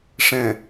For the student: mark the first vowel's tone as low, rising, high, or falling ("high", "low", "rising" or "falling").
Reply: low